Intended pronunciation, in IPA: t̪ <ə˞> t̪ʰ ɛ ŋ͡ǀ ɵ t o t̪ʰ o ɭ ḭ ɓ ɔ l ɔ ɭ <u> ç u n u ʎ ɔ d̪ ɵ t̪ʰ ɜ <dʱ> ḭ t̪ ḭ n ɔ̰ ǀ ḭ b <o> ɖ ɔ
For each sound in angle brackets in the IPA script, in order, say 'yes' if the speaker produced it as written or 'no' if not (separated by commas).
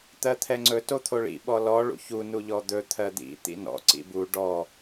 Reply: no, no, no, no